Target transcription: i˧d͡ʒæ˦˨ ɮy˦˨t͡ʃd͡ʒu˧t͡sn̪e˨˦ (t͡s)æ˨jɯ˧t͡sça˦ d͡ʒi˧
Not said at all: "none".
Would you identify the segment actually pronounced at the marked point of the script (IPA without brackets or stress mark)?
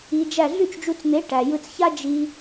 ʈ